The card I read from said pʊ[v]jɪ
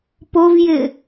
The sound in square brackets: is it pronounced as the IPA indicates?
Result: yes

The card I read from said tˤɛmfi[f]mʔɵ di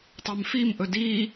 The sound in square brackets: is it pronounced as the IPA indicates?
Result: no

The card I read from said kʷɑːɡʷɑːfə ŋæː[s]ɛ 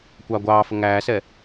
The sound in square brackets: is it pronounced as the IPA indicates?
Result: yes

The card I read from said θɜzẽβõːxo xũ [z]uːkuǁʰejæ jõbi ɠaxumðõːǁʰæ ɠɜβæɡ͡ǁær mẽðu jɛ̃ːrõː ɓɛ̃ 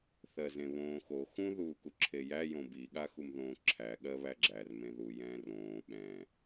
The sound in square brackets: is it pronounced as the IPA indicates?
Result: no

